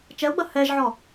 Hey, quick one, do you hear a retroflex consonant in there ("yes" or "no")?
no